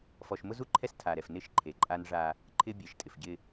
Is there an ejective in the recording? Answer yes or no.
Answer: yes